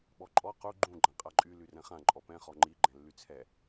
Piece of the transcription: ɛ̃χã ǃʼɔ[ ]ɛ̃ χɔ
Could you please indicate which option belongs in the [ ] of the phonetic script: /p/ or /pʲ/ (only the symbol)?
p